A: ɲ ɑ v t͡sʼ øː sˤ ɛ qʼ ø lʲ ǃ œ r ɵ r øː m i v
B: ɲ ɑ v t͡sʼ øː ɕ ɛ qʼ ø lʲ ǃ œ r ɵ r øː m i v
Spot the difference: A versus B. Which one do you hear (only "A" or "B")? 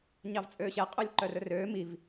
B